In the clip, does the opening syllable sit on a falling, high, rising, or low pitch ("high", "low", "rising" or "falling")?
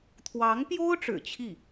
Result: rising